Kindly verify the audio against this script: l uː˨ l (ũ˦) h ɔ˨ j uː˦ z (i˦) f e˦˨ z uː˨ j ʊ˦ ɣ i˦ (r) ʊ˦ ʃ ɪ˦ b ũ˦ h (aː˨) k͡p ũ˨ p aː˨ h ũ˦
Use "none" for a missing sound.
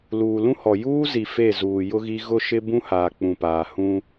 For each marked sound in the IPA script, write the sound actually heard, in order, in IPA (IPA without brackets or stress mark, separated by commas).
ũ˦, i˨, ɣ, aː˨